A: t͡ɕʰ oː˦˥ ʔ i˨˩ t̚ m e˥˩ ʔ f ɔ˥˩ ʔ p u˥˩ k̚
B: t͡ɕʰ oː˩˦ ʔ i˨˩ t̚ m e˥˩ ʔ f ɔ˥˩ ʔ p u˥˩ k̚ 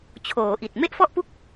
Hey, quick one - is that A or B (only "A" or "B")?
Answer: B